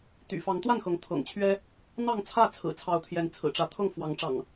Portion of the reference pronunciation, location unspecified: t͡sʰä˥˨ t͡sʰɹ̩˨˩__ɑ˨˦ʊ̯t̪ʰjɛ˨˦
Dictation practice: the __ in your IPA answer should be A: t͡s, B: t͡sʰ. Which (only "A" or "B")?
B